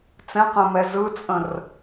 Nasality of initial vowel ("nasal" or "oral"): nasal